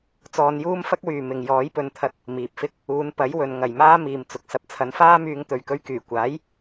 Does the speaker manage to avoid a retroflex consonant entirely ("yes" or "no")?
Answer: yes